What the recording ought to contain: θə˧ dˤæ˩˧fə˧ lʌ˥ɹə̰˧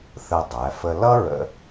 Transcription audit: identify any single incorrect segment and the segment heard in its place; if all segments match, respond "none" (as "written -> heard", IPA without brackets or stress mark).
none